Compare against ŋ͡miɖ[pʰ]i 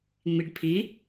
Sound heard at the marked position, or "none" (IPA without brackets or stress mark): pʰ